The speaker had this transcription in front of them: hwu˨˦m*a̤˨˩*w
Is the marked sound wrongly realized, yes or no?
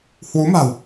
no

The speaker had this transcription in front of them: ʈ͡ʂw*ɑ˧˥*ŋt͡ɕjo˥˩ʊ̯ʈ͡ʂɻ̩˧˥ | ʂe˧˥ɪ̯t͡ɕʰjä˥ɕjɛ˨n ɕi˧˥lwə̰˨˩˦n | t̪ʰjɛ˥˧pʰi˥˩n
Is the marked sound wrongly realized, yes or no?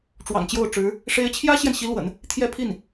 yes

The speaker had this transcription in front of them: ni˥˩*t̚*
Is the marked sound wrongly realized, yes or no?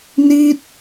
no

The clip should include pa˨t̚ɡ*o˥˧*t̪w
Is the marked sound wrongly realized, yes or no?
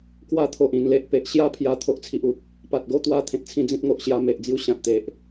no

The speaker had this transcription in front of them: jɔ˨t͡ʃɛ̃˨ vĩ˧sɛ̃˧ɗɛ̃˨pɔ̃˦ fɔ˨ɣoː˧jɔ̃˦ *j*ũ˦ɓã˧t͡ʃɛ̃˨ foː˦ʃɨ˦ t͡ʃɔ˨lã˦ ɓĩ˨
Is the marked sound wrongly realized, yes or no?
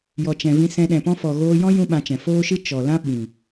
no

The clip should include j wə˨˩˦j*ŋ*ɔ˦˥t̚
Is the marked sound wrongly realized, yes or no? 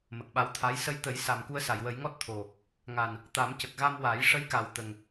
no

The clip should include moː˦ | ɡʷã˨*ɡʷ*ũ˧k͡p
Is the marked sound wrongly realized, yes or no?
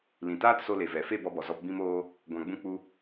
yes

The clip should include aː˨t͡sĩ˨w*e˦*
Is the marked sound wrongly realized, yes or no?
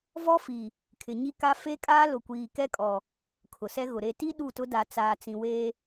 yes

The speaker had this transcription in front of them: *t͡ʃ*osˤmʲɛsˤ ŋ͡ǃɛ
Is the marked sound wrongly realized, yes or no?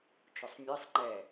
no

